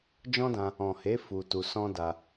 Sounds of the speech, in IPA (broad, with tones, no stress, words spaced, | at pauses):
d͡ʒɔ̃˦dã˧ | ɔ̃˨he˨˦ fu˧tu˧ sɔ̃˦da˧